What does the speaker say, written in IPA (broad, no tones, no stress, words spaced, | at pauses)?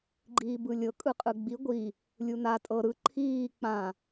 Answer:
ɡ͡ǃiːbɯlʲɤ kʼɯqʼɯɡ͡bi ɡʷi | lʲuna tʼɤ ɾɯ ǃʰiː k͡pã